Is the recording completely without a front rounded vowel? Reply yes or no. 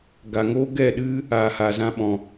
yes